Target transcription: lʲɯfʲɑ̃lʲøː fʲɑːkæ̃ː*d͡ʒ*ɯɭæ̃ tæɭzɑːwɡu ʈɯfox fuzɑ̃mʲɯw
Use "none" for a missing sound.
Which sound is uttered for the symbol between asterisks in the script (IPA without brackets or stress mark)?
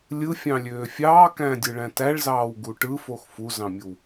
dʲ